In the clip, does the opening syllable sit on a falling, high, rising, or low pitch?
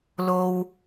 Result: low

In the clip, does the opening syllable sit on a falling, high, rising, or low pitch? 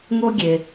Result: high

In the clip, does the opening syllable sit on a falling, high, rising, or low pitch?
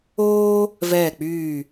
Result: high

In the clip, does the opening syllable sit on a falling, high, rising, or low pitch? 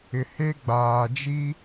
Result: low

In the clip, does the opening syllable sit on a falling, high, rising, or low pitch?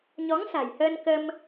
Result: rising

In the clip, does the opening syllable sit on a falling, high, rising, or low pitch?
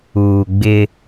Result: low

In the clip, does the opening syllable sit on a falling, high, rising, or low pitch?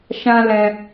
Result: high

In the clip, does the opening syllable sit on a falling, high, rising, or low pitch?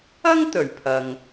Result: high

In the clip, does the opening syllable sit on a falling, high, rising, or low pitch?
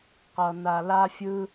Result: low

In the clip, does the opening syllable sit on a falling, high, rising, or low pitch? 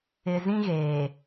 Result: low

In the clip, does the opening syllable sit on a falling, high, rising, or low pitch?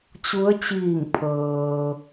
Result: rising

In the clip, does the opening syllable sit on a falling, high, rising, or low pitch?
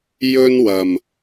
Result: high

